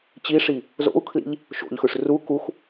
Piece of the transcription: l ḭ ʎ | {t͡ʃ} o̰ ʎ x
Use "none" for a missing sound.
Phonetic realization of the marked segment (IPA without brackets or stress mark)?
ʃ